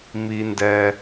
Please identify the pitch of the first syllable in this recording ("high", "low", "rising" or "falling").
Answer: high